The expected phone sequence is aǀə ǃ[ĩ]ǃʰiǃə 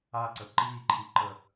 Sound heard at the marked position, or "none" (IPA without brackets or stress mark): i